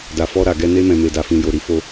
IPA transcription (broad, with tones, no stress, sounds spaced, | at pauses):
d a˨ f ɔ˧ ɾ a˨ ɡ ɛ˧ n e˧ m ɛ̃˨ m e˨ d a˨ f ĩ˨ j o˨ ɾ i˨˦ f o˧